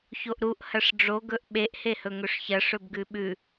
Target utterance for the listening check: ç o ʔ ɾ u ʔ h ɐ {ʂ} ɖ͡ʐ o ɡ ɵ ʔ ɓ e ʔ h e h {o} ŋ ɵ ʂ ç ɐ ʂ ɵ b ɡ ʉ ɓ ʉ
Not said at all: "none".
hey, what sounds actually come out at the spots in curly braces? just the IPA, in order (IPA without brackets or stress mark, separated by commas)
ʂ, ɵ